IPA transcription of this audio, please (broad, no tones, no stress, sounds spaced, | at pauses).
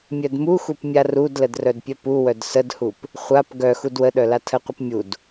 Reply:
mʲ œ d m u x u p mʲ a r u d l ə d r œ d pʲ œ p u w œ d s ə d h u p | χʷ a p ɡ œ x u d w ə ɗ œ l a tʰ ə qʷ ə p mʲ u d